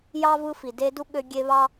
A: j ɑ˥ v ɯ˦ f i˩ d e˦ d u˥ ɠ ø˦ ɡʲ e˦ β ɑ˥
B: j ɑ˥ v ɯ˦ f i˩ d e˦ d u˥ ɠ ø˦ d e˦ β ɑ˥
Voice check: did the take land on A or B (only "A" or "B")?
A